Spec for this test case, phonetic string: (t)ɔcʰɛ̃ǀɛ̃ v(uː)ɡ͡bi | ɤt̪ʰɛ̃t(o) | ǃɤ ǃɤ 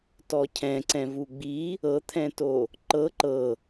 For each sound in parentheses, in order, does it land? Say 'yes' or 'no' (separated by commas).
yes, no, yes